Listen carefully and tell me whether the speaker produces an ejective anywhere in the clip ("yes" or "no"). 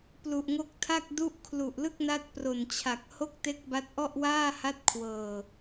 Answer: no